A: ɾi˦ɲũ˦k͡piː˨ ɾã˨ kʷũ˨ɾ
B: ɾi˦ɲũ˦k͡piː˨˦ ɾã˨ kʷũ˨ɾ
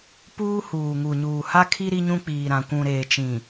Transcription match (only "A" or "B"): A